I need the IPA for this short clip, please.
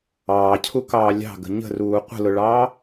ɑː cʰ u k ɑː lʲ ɑ̤ ɡ ə̤ ɲ ə̤ r uː qʷ ə̤ l ʊ ɭ ɑː

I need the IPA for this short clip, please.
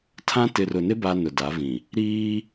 tʰ ã˦ t ɪ˨ r ʊ˨ n ɪ˦ b a˦ n ʊ˨ d a˨˦ v ĩ˨ | ɾ iː˦

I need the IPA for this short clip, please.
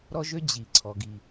ɾ ɔ˥ ʒ ø˥ d͡ʑ i˩ ǀʰ ɔ˩ ɡ i˩

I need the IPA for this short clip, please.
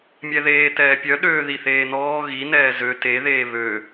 mʲ ɛ ð eː t ɛː pʲ œ ɗ øː ð i θ eː n ɔː ɣ i n ɛː z ø t e ð eː β ø

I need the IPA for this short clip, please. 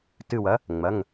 t ɨ˧˩ w ɐ˩˥ | ŋ͡m ɐ˩˧˩ ŋ

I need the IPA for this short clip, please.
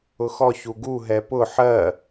ʊ x ɔ ç u ɡ u ɦ ɛ p ʊ ħ ɜ

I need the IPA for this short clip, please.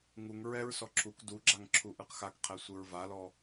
ŋ u ŋ ɹ ɛ ɹ s ɔ ǁʰ u k d u ɡ͡ǁ a ŋ ǁʰ u ʔ ɯ q x a k qʰ ɛ sʷ ɯ ɹ v a l ɔ

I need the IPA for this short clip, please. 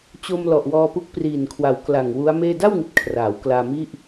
t͡ɕ o˧ m l ɔ˨˩ ʔ w ɔː˧ p u˦˥ k̚ p r iː˨˩ n kʰ w a˨˩ w k l a˨˩ ŋ w u˦˥ a̯ m eː˥˩ d a˥˩ w ŋ i˨˩ t̚ kʰ r aː˩˦ w k l aː˧ m i˥˩ ʔ

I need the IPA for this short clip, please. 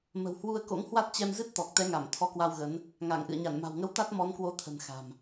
m ə̤˨˩ w h w u˧ ə̯ k o̰˧˥ ŋ h w a˦˥ t̚ t͡ɕ ɛ˧ m z ɨ˦˥ t̚ t̪ ɔ˨˩ k̚ t̪ ɛ˨˦ ŋ a˧˩ m t̪ʰ ɔ˨˦ k w a˧ w ɣ ə˨˦ n | ŋ a˧˩ ŋ ʔ ɨ̰˧˨ ə̯ ɲ a˧˩ n m a̤˨˩ w ŋ ə˧ w t̪ a˦˥ t̚ m ɔ˨˦ n k w o˨˦ t̪ʰ ə̤˨˩ n x a̤˨˩ m

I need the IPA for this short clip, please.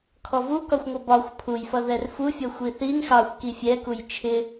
kʰ ɔ v u k ɒ xʷ ŋʷ ʌ b ɒ xʷ pʰ u j f ʌ ð ɛ r f u fʲ ʌ xʷ i θ i n x ɑ xʷ k i fʲ ɛ k u j t͡ʃʰ ɪ

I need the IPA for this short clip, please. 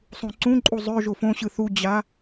sˤ ũ ǀ ũ ǃʼ u zˤ ø ʒ o f õ ɕ ɯ θ u d͡ʑ a

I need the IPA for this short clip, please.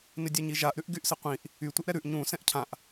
n ɪ dʲ ɛ ɲ i ʒ a ʔ ɾ ʉ ʔ ɡ y ʔ s ɪ qʷ ĩ ʔ | y tʷ ɪ ʔ ɾ ɛ ɾ ʉ ʔ ɲ ũ s ɛ̃ ʔ cʰ ã ʔ

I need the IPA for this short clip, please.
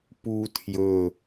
p u tʰ j ɵ

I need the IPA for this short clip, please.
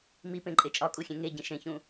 m i p ẽ ǃʼ e t͡ʃʼ ɒ kʼ u xʲ ẽ ŋ e ɟ ĩ ʃ ẽ ç ũ

